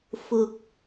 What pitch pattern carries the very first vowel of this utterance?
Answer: low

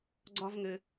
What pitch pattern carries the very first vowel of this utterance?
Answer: high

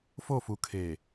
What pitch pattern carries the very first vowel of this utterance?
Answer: falling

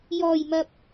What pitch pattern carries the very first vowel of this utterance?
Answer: low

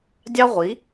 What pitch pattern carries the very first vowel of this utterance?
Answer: high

